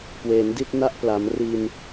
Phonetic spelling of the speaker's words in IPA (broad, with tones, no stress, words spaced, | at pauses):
kwe˩˦ndi˥˩t̚na˥˩ʔ pla˩˦mri˧n